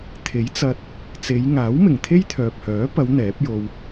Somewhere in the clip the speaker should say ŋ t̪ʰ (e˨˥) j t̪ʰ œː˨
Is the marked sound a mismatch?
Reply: yes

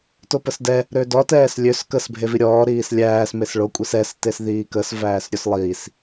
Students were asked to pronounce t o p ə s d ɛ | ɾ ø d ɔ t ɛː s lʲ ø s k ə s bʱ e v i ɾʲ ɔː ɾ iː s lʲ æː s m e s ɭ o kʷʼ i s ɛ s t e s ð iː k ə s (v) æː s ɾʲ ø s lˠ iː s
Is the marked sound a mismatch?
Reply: no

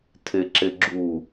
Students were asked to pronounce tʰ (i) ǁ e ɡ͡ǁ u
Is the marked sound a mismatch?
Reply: yes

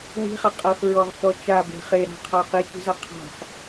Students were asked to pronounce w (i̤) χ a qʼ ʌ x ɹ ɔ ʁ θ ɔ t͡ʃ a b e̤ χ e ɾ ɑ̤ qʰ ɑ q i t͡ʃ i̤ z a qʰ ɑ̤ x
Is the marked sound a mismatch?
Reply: no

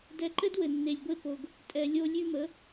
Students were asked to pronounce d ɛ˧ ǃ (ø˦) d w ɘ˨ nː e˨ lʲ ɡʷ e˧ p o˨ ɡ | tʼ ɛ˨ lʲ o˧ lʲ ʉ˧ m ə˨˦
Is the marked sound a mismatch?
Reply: yes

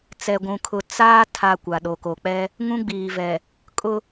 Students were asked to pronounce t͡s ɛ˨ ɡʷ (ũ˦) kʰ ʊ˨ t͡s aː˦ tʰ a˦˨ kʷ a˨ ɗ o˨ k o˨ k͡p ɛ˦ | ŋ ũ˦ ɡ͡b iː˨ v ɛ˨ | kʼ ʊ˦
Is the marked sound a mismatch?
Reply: yes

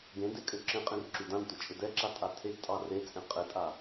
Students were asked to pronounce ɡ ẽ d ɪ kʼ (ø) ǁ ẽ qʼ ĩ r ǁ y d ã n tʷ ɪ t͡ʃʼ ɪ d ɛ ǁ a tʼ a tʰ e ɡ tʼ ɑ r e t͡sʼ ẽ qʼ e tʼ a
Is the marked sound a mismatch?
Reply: no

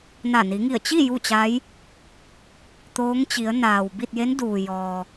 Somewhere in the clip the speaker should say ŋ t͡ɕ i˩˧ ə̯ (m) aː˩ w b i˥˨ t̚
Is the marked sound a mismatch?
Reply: yes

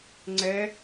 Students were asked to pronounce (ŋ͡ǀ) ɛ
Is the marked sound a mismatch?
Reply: no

